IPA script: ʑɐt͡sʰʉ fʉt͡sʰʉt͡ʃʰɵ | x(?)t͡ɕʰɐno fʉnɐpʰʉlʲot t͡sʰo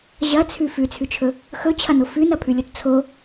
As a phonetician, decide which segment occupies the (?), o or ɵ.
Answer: ɵ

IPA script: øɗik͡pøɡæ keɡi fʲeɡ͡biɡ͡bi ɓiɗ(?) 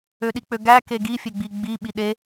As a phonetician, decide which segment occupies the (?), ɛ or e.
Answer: e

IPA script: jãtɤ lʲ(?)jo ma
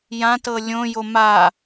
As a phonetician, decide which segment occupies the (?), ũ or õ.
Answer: õ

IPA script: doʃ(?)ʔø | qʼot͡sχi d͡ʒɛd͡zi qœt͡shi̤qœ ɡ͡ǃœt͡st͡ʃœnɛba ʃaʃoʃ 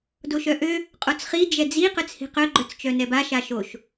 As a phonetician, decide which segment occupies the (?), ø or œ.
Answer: œ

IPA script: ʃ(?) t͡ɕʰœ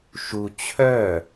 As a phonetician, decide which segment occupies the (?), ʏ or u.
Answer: u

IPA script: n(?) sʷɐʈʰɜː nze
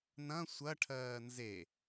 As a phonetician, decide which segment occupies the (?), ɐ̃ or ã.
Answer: ɐ̃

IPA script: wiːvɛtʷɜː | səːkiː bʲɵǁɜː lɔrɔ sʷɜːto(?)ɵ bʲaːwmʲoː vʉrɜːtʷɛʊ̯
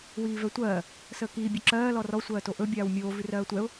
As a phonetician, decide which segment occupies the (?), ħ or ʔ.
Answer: ʔ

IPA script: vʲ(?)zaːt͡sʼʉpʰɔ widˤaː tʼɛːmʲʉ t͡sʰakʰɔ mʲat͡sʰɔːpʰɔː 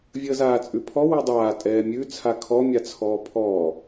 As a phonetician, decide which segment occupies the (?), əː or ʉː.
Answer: əː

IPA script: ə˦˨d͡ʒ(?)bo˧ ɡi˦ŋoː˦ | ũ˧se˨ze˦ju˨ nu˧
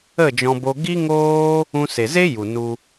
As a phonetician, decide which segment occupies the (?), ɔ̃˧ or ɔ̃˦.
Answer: ɔ̃˧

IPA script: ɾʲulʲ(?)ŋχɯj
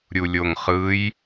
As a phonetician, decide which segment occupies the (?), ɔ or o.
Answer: o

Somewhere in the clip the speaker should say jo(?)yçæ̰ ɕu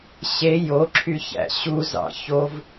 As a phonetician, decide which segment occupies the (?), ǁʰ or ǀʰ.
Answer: ǁʰ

